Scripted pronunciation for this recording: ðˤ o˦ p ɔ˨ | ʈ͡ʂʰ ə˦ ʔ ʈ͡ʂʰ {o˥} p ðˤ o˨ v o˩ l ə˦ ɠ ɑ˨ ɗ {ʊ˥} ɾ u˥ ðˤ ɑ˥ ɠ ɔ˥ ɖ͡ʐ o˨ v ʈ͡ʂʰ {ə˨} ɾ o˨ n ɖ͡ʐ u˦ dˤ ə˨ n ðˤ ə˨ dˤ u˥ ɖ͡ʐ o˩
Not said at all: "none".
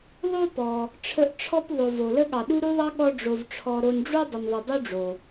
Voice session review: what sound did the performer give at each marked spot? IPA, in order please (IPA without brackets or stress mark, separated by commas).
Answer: ɔ˥, u˥, ɔ˨